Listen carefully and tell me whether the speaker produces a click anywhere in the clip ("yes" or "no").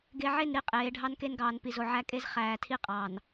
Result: no